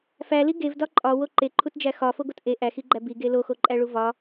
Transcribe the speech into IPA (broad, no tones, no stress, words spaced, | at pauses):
fæli ɡevdɒ ǃʼɒwo ǃeǃʰutd͡ʒæ xɒfoɡot ʔe ʔæxiɡ͡ǃæ biɡe loxoǃʼæɭu vɒ